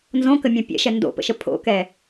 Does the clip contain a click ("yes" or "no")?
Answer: no